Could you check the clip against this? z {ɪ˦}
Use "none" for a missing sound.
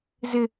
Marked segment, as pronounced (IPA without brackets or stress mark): ɪ˦